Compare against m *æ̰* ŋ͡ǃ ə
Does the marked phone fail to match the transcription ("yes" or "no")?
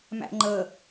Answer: no